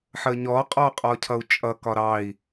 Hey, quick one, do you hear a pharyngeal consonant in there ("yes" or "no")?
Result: yes